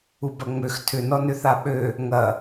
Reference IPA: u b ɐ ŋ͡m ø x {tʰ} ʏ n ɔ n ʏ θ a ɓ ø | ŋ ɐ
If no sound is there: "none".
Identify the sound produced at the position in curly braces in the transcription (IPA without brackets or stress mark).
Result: tʰ